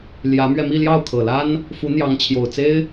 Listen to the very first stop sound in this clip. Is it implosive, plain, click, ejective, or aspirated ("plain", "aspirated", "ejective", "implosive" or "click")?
aspirated